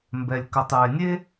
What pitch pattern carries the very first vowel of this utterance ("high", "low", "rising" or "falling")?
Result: low